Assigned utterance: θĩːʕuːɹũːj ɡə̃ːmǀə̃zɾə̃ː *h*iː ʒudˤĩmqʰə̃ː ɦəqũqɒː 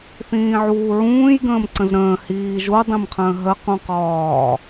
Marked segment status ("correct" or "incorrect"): correct